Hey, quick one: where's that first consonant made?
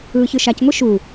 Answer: palate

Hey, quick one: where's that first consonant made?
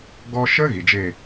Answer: velum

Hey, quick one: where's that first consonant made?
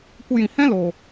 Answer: velum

